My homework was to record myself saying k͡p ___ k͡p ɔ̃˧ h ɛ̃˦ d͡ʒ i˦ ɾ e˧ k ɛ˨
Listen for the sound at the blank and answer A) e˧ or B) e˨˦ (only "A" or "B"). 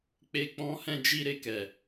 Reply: A